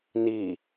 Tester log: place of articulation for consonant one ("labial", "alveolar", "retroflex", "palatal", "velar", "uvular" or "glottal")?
alveolar